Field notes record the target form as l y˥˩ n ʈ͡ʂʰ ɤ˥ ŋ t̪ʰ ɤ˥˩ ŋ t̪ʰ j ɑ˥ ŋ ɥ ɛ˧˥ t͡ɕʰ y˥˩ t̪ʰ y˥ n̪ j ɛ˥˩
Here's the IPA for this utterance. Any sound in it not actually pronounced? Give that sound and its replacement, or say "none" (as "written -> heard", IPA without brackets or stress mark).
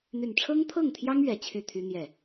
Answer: l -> n̪